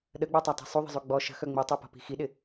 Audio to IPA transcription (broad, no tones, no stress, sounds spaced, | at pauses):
ɗ ə ɡ͡b œ tˤ a tˤ i̤ sˤ u ðˤ ə̤ zˤ y ɡ͡b ɔ ʃ ə̤ x œ ŋ͡m i tˤ i p ɔ̤ p i̤ x i ɗ ɪ